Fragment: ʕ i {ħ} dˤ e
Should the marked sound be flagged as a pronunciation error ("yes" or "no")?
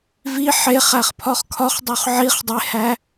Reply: yes